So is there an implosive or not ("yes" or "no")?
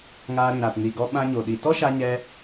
yes